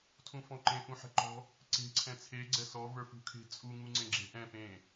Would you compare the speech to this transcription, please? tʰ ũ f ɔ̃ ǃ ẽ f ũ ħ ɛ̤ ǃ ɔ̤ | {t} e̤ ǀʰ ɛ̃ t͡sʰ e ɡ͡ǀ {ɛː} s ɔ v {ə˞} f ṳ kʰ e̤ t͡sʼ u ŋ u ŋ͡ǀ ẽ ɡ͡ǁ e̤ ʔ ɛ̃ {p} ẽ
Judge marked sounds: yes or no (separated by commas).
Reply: no, no, yes, yes